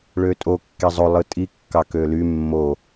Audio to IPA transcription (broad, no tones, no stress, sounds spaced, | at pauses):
ɭ ø tʼ o kː e zˤ o lˠ ɯ tʼ i kː ɑ k ø l y mː o